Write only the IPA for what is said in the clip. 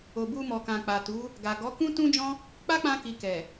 o˨ b u˧ m ɔ˨ k ã˨ k͡p a˨ t u˨˦ | ɡ a˨ ɡ ɔ˨˦ k ũ˦ t ũ˦ d͡ʒ ɔ̃˦ | k͡p a˦ k͡p ã˧ k i˨ k ɛ˨

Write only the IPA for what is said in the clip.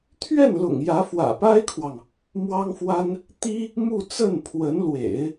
t̪ʰ ɥ ɛ˥˩ n l ʊ̰˨˩ ŋ j ä˧˥ f w ä̰˨˩ p a˥ ɪ̯ kʰ w ɑ˨ ŋ | m w ɑ˥ ŋ f w a˥ n | t̪ i˥ | m u˥˧ t͡s ə˥˩ n pʰ w ə˧˥ n l w ḛ˨˩˦ ɪ̯

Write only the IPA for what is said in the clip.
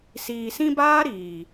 s iː˨ s ĩ˧ b aː˦ ɾ iː˨

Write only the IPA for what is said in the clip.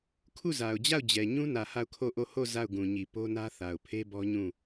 kʰ u˦˨ z a˨ ʊ̯ d͡ʑ a˦˨ ʊ̯ d͡ʑ ɛ˨ ɲ ũ˦ n ä˨ h a˦˨ ʊ̯ kʰ o˦˨ ʔ o˦˨ h o˦˨ z a˦˨ ʊ̯ ɡ ũ˨ ɲ i˨ p o˦ n ä˦ θ a˨ ʊ̯ pʰ e˦ b ɔ˦ ɲ ũ˦˨

